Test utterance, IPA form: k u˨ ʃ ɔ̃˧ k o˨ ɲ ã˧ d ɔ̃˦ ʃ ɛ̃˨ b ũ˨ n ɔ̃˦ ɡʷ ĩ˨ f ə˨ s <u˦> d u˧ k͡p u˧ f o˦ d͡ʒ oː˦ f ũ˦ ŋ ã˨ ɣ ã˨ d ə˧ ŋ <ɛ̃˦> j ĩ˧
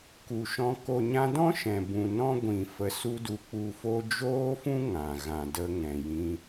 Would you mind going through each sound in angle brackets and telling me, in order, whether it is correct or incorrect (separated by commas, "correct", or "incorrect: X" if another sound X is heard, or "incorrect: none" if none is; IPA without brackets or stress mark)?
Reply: correct, incorrect: ɛ̃˨